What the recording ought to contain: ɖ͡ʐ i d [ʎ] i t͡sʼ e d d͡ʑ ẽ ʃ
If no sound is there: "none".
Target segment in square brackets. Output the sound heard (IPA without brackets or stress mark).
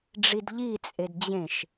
ʎ